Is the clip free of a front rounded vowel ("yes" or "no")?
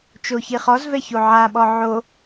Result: yes